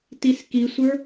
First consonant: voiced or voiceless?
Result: voiceless